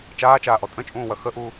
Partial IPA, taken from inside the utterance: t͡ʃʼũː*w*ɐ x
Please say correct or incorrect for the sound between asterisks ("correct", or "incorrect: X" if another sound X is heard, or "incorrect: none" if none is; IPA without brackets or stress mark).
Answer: correct